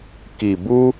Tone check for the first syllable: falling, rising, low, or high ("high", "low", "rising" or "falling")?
low